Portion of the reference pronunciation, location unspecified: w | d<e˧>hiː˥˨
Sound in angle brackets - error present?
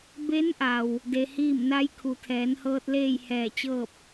no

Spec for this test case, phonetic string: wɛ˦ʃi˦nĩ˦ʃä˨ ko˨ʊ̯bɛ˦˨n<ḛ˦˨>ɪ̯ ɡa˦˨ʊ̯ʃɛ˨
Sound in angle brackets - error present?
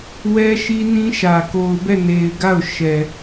yes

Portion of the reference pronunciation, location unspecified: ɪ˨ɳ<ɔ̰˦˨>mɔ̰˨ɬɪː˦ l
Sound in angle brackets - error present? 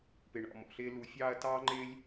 no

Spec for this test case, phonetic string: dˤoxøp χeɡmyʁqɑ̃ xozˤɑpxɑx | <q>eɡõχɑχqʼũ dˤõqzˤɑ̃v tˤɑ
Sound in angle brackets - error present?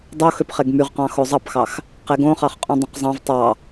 no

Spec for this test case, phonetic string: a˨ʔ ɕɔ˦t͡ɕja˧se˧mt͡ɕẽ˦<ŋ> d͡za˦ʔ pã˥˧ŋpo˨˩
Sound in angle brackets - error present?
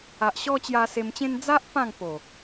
yes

